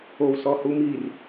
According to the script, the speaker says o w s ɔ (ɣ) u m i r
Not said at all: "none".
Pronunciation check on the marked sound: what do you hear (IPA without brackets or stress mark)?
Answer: h